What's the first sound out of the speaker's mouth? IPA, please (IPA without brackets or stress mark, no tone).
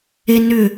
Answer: e